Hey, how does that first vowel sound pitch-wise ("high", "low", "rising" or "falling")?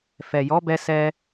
low